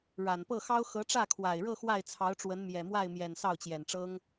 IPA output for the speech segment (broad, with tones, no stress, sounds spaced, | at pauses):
ɻ a˨˩ n p ɤ˥˩ x ɑ˥ ʊ̯ x ɤ˧˥ ʈ͡ʂ ä˥˩ kʰ w a˨˩ ɪ̯ ɻ ɤ˥˧ x w a˥˩ ɪ̯ t͡sʰ ɑ˧˥ ʊ̯ ʈ͡ʂ w ə˧˥ n m j ɛ˨˩ m w a˥˩ ɪ̯ m j ɛ˨˩ n s ɑ˥˩ ʊ̯ t͡ɕ j ɛ˨˩ n ʈ͡ʂ ɤ˥ ŋ